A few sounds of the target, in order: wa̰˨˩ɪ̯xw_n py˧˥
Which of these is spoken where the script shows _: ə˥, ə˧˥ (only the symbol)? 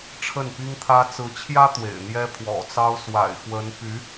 ə˧˥